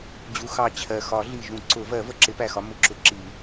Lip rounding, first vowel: rounded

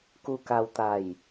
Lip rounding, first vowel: rounded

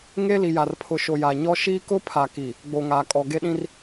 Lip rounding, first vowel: unrounded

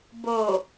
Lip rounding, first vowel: rounded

